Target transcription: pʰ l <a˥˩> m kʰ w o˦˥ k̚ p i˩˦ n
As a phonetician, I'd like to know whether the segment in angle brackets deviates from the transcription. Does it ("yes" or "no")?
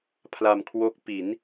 yes